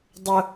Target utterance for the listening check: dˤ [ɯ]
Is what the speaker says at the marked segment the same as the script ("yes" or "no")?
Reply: no